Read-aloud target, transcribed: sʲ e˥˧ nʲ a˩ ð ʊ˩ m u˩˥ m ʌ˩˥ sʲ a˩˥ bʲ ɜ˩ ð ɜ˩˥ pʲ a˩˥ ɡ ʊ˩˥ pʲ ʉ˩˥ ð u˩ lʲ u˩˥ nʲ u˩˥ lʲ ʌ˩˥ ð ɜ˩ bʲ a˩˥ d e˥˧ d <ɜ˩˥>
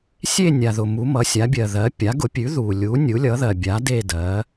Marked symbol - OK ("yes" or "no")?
yes